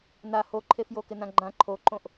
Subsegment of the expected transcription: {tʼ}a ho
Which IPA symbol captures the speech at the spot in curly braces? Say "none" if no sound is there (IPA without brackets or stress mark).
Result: n